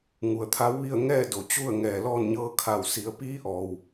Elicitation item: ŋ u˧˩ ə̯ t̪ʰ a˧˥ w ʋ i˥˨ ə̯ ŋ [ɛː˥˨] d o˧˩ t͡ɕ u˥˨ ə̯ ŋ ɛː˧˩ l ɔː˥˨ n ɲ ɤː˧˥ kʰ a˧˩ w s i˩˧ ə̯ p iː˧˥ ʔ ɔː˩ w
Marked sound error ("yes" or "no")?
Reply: no